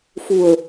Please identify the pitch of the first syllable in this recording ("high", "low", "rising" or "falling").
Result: low